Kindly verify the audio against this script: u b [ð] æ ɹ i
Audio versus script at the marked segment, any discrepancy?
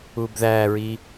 no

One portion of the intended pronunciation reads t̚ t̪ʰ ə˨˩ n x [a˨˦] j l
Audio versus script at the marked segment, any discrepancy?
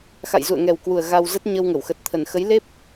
yes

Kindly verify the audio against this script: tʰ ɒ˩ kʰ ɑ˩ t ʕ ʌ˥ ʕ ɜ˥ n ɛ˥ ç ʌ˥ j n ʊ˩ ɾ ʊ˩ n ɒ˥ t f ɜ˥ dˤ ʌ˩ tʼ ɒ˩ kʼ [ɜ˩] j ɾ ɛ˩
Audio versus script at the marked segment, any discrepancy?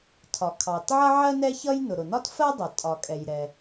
yes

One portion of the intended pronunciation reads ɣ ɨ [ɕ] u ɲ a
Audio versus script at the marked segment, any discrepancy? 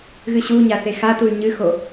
no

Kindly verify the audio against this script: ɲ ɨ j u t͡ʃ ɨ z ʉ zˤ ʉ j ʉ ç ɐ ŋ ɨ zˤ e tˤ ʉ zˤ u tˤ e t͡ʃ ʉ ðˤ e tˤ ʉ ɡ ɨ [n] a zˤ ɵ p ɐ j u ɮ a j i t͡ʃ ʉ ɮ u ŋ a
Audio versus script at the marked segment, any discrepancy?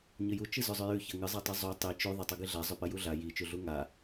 yes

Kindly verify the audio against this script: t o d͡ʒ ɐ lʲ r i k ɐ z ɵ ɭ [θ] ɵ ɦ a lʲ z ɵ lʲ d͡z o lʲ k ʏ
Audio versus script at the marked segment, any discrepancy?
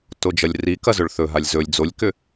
no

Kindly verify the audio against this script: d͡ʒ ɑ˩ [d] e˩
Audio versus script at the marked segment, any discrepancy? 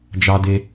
no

